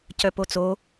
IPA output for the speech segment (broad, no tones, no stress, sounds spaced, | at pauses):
c œ p o t͡s o